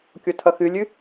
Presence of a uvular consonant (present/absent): absent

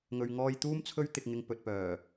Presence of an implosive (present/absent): absent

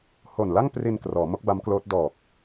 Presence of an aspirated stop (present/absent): absent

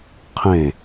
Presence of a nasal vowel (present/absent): present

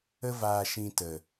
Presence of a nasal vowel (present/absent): present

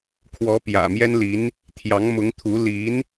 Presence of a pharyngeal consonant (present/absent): absent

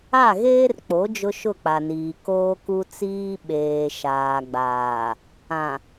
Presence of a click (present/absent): absent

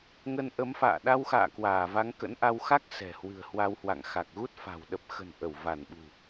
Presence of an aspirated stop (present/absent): absent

